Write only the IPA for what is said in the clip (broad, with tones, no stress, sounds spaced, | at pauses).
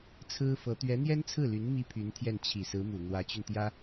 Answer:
t͡sʰ ɹ̩˥ f ɤ˧˥ t̪ ɥ ɛ˧˥ n̪ j ɛ˥ n t͡sʰ ɹ̩˥˩ l y˧˥ n m i˥ pʰ y˧˥ n t̪ʰ j ɛ˥˩ n t͡ɕʰ i˨˩ s ɹ̩˧˥ m u˨˩ n̪ w ä˧˥ t͡ɕ y˧ n t̪ j ä˥